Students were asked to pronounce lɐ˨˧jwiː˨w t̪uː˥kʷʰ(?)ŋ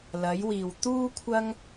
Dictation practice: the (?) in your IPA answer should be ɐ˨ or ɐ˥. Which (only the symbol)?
ɐ˥